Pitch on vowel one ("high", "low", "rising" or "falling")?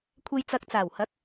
low